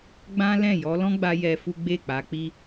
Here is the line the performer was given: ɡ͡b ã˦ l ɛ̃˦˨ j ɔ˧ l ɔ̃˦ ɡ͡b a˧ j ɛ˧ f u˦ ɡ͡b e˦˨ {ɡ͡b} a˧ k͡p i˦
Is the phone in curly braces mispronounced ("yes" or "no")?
yes